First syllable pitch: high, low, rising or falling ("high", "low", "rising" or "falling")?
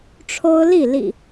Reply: high